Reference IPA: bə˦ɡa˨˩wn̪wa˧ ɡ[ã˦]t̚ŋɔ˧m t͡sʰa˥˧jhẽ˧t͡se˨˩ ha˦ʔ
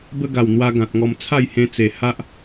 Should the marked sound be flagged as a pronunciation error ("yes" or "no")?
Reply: yes